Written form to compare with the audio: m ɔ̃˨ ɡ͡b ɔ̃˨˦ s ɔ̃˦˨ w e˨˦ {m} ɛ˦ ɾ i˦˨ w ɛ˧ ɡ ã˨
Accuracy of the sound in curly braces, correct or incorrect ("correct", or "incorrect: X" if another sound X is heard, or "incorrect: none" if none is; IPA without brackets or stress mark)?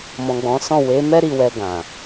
correct